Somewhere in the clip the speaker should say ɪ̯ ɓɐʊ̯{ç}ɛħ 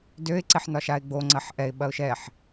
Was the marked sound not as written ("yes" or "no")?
yes